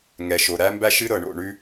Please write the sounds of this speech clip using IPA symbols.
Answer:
ŋ ɛ˨ ʃ o˨ ɾ æ˦ m b æ˦ ʃ ɨ˦ ɾ ɤ˨ ɳ o̰˦˨ ɳ ʉ˦

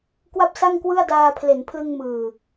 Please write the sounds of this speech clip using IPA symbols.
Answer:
k w a˥˩ p̚ s a˥˩ ŋ k w ɯ˥˩ a̯ d aː˧ pʰ l e˩˦ n pʰ l ɯ˧ ŋ m ɯː˨˩

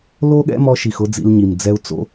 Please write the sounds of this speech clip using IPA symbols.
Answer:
l o˦ ɠ ɛ̰˦ m ɔ˧ ʃ i˨ x ʊ˦ d͡z ḭ˧ l ɲ i˨ m d͡z ɛ˧ u̯ t͡s o̰˦

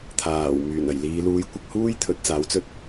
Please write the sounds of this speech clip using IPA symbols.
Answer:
t̪ʰ aː˨˩ w m yː˨˩ n ɐ˨˩ j l iː˨˧ l uː˨˥ j kʷ ɪ˧ k̚ h uː˥ j t̪ʰ ɵ˨˥ t̚ t͡s aː˨˥ w t͡s ɵ˥ t̚

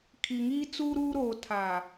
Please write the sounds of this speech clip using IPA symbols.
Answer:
kʰ i˨ ŋ iː˦ t͡s uː˦ ɾ uː˦ ɾ oː˨ tʰ a˨

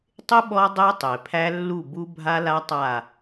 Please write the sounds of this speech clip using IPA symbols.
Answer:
tˤ ɪ˦ ɓ ɔ˦ dˤ e˦ tˤ e˨ pʰ æ˦ lː u˦˨ b u˦ bʱ a˦ l a˦ tˤ a˦˨

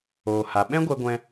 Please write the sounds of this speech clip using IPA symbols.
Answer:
oː˨ h a˨ ɓ ɛ̃˦ ɡʷ ɛ˧ ɡʷ ɛ̃˧

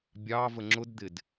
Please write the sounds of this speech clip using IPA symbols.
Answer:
bʲ ɑ v ə ŋ͡ǁ ʊ d d̪ ɪ d

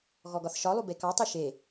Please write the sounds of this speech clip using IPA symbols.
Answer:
ɣ ɔ ɡ ɒ θ ʃ ɒ lˠ u b e k ɑ tˤ i ʃ e

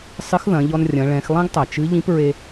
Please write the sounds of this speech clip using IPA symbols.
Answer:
sˤ ɨ˧˥ x ð ɐ̃˩˧ ʎ ɔ˧ n rʲ ɐ̃˩˧ ɭ ɛ̃˩˧ x lˠ ɛ̃˥ ɡ tˤ ɐ˩ t͡ʃ ɨ˧˥ ʎ ĩ˧˥ p ɹ e˧

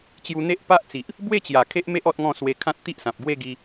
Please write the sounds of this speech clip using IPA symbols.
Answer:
t͡ɕ j u˧ n̪ e˦ ʔ p a˦ ʔ t͡s i˨ ʔ | b w e˥˧ t͡ɕ j a˨˩ kʰ e˦ ʔ m e˦ ʔ ɔ˦ t̚ ŋ ɔ̃˥˧ s w e˧ kʰ ã˦ t̚ t̪ i˦ ʔ s ã˨ p̚ ɡ w e˥˧ ɡ i˧

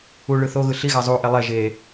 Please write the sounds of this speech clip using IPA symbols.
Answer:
u ɭ ɯ θ o ɣ ɯ ɬ i ɣ a zˤ u ʔ e lˠ ɛ ʒ e

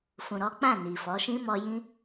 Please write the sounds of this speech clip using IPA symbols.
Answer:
f ũ˨ ɾ ɔ˨˦ k͡p ã˦˨ n i˨ f ɔ˨˦ ʃ ĩ˦ m ɔ˧ j ĩ˦

